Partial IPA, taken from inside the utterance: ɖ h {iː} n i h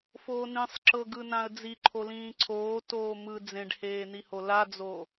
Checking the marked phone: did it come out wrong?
yes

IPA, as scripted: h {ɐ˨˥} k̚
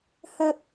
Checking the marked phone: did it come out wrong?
yes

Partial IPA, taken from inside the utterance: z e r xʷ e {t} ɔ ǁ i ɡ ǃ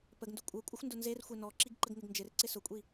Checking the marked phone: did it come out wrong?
yes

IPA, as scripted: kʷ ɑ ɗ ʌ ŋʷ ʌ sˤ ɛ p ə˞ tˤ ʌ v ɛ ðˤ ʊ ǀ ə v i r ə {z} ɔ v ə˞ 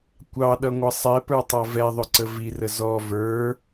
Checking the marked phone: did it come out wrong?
no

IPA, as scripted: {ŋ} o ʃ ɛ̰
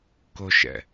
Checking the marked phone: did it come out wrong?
yes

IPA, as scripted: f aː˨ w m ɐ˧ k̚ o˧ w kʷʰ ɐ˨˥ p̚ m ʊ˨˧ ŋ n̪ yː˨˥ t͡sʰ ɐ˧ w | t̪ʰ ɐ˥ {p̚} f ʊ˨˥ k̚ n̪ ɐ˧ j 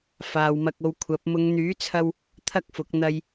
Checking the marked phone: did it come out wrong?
yes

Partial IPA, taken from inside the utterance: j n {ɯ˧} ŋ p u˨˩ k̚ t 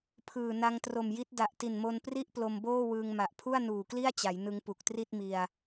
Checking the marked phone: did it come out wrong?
yes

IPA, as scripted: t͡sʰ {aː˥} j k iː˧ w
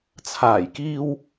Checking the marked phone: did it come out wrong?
yes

